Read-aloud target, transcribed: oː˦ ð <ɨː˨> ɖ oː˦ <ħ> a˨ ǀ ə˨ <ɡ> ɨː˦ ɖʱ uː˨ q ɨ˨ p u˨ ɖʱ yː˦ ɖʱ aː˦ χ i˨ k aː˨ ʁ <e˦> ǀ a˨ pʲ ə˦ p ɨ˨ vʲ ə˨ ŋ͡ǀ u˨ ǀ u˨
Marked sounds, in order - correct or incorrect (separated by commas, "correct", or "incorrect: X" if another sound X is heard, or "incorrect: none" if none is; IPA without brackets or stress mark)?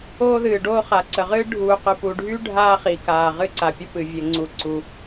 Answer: correct, incorrect: χ, incorrect: ʁ, incorrect: ɨ˦